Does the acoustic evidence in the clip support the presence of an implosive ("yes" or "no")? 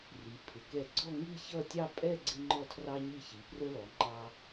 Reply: no